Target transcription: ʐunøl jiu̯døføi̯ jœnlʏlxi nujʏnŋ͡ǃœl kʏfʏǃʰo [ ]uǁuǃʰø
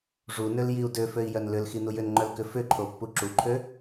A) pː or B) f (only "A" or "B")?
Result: A